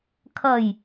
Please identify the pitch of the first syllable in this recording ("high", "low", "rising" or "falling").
low